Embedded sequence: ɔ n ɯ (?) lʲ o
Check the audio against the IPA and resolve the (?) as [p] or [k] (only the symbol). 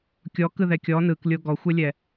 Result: k